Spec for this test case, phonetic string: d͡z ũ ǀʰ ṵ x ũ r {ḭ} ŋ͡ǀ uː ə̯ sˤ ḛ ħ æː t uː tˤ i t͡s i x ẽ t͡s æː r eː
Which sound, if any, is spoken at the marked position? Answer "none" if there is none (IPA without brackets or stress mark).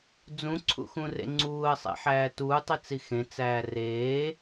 ḛ